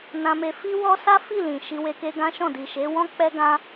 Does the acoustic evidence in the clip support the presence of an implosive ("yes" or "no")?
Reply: no